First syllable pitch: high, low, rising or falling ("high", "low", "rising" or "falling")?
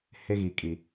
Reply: high